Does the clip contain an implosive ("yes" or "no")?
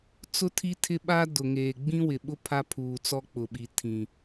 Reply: yes